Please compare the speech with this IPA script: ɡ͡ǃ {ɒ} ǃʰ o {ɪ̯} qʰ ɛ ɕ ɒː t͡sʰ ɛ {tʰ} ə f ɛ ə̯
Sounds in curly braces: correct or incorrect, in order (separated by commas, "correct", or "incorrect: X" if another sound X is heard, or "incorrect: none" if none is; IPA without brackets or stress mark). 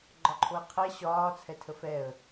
correct, correct, correct